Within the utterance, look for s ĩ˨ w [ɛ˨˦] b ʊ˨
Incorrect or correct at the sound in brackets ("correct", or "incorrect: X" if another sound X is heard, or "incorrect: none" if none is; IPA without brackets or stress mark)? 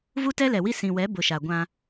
correct